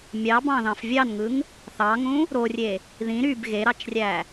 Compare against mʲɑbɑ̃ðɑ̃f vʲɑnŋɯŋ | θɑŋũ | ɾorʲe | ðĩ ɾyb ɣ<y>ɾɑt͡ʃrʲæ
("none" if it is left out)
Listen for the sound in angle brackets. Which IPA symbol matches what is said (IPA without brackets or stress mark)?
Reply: e